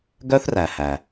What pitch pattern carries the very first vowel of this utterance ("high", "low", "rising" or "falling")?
high